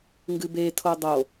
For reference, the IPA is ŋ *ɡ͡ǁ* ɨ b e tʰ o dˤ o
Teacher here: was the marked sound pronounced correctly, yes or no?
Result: no